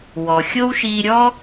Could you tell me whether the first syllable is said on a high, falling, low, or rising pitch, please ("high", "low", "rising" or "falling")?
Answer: low